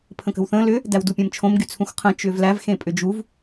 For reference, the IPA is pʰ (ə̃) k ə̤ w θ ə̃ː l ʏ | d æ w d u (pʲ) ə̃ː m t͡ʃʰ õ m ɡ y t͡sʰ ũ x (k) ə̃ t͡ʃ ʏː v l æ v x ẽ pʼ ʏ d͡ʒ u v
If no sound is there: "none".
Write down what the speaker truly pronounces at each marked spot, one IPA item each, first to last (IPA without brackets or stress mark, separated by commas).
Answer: ə̃, pʲ, qʰ